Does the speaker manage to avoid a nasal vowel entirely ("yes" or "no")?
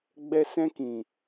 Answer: no